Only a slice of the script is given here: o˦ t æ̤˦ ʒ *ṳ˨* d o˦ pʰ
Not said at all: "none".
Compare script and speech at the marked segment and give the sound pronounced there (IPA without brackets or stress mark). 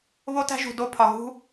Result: ṳ˨